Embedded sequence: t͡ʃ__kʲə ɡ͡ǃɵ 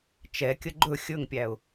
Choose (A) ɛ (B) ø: A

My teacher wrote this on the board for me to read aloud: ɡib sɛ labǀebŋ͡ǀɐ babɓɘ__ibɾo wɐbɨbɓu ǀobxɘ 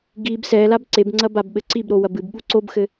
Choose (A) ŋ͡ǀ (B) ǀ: B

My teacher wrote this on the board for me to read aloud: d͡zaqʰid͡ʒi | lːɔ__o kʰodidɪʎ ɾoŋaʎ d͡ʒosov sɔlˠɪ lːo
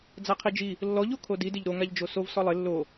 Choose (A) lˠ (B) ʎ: B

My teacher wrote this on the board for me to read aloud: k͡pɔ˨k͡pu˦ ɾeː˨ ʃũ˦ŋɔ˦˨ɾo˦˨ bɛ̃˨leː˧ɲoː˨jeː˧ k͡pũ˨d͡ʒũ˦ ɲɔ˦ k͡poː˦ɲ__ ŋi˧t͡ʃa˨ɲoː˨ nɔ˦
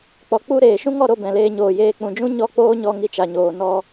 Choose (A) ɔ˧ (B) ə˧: A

